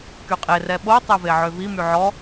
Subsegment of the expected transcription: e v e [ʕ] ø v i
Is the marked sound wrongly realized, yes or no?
no